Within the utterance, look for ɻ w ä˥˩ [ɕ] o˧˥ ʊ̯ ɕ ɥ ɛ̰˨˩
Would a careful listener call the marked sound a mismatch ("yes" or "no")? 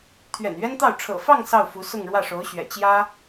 yes